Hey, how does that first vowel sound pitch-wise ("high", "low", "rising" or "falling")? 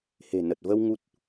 low